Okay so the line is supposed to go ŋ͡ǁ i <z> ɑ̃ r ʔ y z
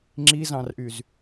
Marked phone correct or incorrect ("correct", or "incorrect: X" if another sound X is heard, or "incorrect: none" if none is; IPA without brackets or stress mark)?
correct